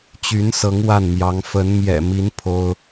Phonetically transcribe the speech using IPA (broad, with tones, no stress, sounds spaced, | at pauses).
t͡ɕ y˧˥ n s ɤ˧˥ ŋ w a˥˩ n m j ɑ˧˥ ŋ f ə˧˥ n m j ɛ̰˨˩ m i˧˥ n pʰ o˥ ʊ̯